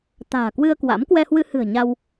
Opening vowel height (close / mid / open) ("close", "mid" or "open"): open